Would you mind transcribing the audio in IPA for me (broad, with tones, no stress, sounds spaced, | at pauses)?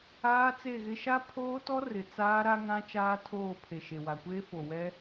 aː˦ t͡s e˦˨ ɣ ɪ˦ ʃ a˦ pʰ oː˦ t ɔ˦ r ɪ˨ t͡s aː˦ ɾ a˦ ŋ ã˦ t͡ʃ aː˦ tʰ oː˦˨ pʰ e˨ ʃ e˨ w a˨ kʷ eː˦ f o˨ w ɛ˦